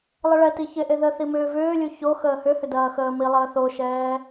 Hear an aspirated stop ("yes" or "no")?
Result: no